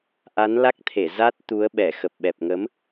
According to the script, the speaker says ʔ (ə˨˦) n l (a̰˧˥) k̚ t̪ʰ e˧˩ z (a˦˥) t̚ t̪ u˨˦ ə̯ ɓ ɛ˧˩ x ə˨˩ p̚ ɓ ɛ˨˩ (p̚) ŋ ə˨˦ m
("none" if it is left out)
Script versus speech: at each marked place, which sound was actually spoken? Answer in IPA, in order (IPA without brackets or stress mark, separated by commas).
a˨˦, a˦˥, a˦˥, p̚